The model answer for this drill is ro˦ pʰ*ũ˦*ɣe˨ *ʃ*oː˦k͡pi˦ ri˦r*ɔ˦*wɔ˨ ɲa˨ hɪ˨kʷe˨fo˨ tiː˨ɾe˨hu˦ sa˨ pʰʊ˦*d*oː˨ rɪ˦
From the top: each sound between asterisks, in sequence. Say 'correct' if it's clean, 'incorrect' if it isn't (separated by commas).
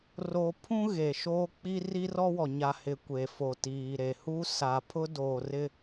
correct, correct, correct, correct